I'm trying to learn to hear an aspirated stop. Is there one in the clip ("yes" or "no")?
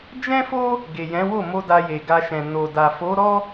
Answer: no